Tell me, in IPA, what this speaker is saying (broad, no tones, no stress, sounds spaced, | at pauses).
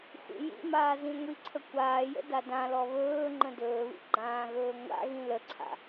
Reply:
xʷ ḭ j ḭ m aː z ĩ ŋʷ i ǀʰ ə kʷ aː j ə̰ d a d ã l ɔ β ɵː ŋ͡ǃ ə̃ d ɵː β ḭ ɡ͡ǃ ãː ɣ ɵː ŋʷ a̰ ɣ ĩ l ə ǀʰ a̰